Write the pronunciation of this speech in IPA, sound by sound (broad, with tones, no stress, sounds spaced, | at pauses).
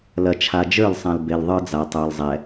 l ɐ˨ t͡ʃʰ a˨ d͡ʒ ə˞˦˨ l sˤ ã˨ l b e˨ l ðˤ ə˞˦ d͡z a˨ tˤ ə˞˨ l zˤ ɛ˨